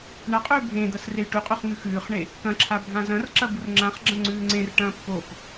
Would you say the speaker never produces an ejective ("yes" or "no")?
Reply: no